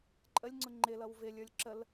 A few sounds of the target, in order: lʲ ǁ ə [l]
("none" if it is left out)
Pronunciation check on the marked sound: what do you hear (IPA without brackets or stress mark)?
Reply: l